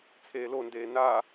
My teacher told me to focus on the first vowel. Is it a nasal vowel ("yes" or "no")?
no